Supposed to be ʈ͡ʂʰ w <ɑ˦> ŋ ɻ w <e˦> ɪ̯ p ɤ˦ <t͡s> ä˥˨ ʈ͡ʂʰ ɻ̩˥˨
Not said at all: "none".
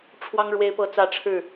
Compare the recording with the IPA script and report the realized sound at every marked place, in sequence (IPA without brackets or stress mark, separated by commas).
ɑ˦, e˦, t͡s